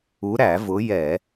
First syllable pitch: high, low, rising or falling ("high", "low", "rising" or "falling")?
rising